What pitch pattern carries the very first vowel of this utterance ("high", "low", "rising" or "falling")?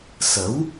rising